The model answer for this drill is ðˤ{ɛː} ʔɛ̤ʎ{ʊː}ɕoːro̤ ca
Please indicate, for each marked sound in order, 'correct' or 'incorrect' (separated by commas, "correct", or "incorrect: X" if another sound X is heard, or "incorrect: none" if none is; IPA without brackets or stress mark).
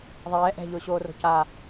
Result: correct, correct